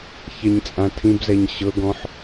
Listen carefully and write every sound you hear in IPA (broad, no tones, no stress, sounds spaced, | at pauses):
ç ɛ ɲ t͡sʼ ã tʰ ĩ b z ɛ ɲ ɕ ɤ ɡ ɔ̃ ħ